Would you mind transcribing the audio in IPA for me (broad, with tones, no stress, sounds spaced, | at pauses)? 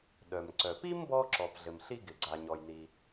ɗ œ˩ m ǀ œ˩ p i˥ m b ɔ˥ ǁ ɔ˩ p ɮ ɘ˩ m ɬ i˥ ɡ ɪ˩ ɡ͡ǀ a˩ ɲ ɔ˩ j n i˩